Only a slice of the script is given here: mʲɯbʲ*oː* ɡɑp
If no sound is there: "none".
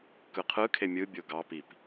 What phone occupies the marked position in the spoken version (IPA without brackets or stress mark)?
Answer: o